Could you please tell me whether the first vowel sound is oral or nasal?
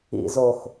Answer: oral